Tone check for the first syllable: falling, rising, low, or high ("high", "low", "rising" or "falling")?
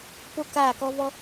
high